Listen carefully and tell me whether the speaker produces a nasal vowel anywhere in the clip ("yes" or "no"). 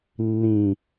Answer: yes